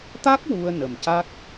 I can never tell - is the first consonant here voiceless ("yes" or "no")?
yes